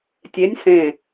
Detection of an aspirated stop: absent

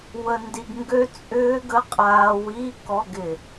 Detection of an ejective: present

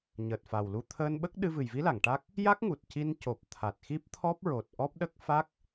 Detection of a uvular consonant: absent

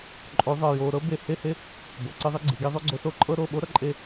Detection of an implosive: present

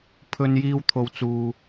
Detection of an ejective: absent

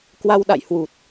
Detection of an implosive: present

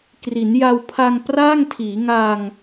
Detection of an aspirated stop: present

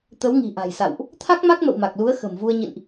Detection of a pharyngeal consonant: absent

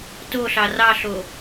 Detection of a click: absent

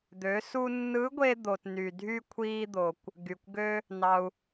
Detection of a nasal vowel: absent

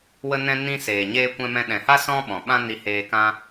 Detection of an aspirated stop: absent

